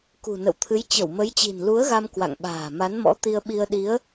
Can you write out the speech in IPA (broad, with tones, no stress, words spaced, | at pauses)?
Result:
kṳ˨˩nə̰˧˨wt̪ʰɨ˨˦j t͡ɕə˧˩wmə˨˦jt͡ɕi̤˨˩n lu˨˦ə̯ɣa˧m kwa̰˧˨ŋɓa̤ː˨˩ ma˨˦nmɔ̰˧˥t̪i˧ə̯ ɓi˧ə̯ɗi˨˦ə̯